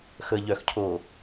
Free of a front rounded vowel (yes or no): no